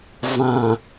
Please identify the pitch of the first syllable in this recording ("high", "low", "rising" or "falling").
low